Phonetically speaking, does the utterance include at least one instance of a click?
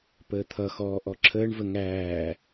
yes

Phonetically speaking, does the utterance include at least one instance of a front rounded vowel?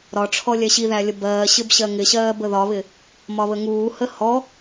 no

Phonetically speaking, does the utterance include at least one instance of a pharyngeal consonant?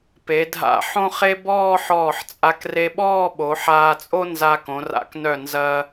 yes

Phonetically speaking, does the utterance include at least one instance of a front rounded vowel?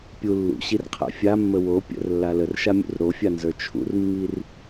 no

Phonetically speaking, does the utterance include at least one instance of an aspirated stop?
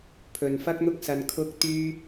yes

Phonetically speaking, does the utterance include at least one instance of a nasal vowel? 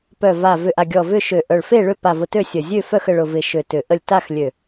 no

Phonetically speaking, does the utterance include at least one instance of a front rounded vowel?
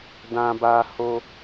no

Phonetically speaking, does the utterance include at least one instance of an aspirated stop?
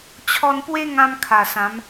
yes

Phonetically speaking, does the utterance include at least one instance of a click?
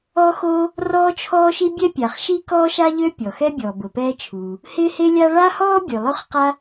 no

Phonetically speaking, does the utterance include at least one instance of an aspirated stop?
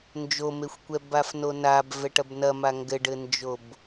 no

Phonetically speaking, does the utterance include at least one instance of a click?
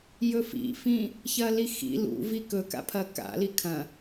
no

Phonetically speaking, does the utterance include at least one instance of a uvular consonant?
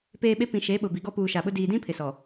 no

